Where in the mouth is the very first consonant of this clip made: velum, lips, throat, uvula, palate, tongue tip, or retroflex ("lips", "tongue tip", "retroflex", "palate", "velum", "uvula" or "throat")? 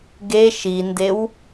velum